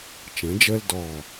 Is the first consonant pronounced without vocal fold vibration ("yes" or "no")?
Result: yes